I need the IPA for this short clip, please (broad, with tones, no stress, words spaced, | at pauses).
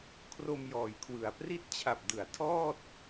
kʰro˧mjɔː˩˦jkʰwɯ˩˦a̯ pri˦˥t̚t͡ɕʰa˨˩p̚dɯ˩˦a̯ tʰɔː˥˩t̚